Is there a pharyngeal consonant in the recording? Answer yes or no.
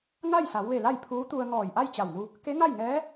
no